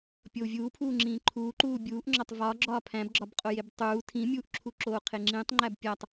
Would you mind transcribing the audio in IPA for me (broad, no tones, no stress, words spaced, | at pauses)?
pʲou̯vʲuːpʰuːŋ͡ǁĩː ǃʰuːǃuː bʲuːʔŋ͡ǁɒtˤ vɒɡ͡ǁɒː pʰæ̃bɡ͡ǁɒbqʼojeb tˤuː tʰĩmʲuːʔǁʰuǁoː qʰeŋ͡ǁĩtˤŋ͡ǃæb pʲætˤ